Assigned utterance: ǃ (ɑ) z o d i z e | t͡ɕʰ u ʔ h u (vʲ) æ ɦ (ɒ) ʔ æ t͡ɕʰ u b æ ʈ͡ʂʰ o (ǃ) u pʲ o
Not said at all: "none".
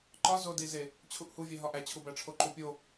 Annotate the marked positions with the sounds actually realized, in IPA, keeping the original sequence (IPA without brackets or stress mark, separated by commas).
ɒ, vʲ, ɒ, ǃ